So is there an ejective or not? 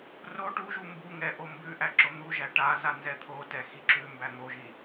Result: no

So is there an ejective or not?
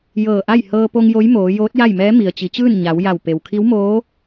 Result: no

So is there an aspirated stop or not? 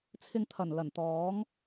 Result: yes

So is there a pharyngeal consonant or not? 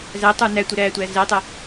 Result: no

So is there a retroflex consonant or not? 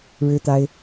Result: yes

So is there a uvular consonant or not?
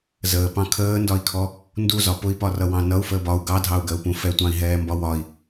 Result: no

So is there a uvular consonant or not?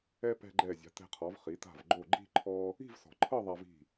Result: yes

